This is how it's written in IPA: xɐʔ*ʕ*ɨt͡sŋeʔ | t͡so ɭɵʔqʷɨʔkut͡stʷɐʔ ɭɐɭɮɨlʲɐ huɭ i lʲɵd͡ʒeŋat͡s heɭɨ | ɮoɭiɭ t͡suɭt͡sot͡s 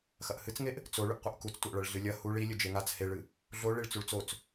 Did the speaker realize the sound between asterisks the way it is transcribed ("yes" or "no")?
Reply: no